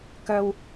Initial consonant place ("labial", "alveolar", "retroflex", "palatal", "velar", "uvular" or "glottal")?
velar